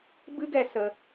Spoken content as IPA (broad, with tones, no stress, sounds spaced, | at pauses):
b ɨ˦ ɡ ɛ˧ s ə˧